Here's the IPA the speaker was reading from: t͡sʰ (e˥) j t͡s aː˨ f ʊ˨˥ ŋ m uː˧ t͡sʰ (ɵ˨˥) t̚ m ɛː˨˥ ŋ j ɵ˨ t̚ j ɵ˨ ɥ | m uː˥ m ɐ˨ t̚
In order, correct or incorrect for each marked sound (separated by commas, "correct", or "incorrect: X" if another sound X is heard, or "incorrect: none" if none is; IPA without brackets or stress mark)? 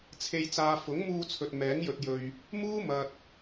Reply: incorrect: e˨, incorrect: ɵ˨